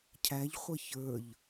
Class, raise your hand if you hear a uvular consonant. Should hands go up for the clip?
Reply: yes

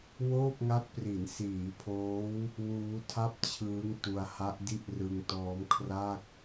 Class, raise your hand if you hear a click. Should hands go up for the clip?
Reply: no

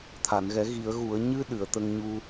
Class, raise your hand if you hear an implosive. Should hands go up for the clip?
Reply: yes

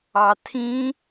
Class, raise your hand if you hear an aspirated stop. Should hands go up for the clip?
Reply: yes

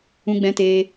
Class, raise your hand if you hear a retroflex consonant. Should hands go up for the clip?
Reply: no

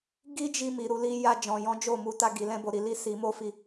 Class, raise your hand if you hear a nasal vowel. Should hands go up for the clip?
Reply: yes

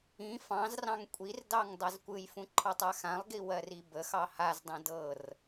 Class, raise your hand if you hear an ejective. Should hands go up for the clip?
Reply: yes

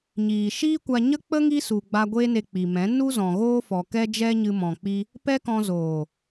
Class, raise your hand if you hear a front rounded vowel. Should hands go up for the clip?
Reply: no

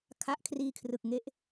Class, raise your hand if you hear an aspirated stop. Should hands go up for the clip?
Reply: yes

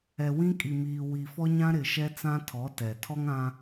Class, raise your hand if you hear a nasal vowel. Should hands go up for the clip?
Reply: yes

